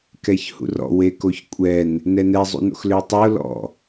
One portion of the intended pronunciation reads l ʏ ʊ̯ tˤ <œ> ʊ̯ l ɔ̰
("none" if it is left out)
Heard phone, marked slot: œ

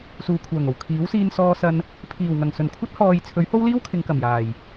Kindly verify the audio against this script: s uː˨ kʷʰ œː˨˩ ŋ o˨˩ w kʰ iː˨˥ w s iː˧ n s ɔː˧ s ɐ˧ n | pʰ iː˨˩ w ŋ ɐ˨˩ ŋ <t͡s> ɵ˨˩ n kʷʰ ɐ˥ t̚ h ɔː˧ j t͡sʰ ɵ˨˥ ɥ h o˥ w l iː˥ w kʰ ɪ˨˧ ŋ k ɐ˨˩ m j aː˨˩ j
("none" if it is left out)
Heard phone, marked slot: s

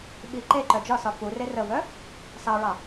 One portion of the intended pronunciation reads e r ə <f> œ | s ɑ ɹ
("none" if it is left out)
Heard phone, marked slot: v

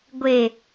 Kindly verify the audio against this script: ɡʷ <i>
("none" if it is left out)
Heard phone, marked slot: e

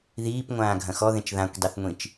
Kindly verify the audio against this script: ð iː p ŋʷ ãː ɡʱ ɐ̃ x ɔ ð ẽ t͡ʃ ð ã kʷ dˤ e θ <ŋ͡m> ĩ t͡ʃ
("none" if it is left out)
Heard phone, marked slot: ŋʷ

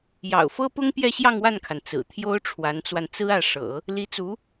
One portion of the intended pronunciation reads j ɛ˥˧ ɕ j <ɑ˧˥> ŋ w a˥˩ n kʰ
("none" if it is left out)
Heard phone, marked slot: ɑ˥˧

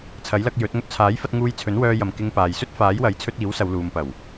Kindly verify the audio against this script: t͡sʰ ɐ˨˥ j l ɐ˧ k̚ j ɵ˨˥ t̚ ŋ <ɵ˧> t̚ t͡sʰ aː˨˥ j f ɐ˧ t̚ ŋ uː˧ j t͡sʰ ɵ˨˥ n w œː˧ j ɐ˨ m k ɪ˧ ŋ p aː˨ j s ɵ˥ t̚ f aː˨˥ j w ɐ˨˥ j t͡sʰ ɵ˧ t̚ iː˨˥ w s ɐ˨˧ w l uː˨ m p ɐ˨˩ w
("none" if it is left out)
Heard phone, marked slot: ɵ˧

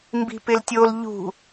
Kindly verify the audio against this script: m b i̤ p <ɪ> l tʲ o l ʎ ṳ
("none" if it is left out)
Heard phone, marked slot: ɪ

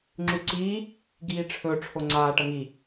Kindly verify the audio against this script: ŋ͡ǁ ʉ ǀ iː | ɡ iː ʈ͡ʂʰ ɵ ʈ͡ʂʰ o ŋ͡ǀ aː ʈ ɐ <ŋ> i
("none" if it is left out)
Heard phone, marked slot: ŋ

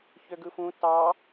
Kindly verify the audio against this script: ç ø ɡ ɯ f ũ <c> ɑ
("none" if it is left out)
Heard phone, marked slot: t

